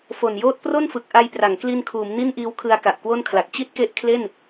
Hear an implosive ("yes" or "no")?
no